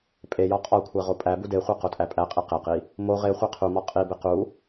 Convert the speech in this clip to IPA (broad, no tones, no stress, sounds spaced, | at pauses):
pʼ e j ɒ qʼ ɒ kʷʰ æ ʁ o pʼ æ b u d e χʷ e q o tʼ æ pʼ æ qʼ i q e q i | m o ʁ e χʷ e qʰ u m ɒ qʼ i b e q u